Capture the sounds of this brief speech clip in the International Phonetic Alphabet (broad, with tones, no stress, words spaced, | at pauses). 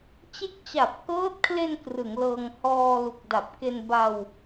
t͡ɕe˦˥k̚t͡ɕa˨˩p̚kɤː˦˥t̚kʰle˧n krɯ˩˦ŋlɤː˧ŋ hɔː˧ lu˨˩k̚da˨˩p̚ ke˧nba˧w